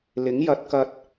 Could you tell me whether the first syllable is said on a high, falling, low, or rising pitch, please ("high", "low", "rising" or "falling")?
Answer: rising